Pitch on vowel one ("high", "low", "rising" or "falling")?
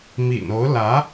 low